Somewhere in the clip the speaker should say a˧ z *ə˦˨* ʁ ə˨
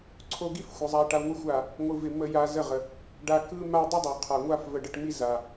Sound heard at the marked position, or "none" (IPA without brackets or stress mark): ə˦˨